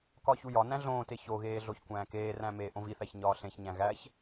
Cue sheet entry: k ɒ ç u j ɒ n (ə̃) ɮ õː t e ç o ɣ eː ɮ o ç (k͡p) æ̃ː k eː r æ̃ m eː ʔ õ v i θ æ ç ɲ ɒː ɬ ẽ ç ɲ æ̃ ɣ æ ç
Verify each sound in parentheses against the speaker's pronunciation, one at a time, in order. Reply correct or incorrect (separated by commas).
incorrect, incorrect